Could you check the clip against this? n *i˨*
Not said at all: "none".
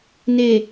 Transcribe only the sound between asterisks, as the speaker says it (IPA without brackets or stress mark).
e˨